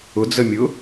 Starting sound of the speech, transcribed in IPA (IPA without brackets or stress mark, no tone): ʊ